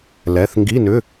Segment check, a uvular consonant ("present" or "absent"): absent